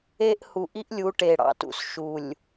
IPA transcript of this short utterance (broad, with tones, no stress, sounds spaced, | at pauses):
e˦ ʔ h u˨ ʔ i˦ ʔ lʲ u˨˦ ʈ e˨ ɽ ɑ̰˦ t ṵ˨ s ʃ u˨ lʲ